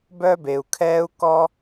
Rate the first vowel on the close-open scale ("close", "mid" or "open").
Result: mid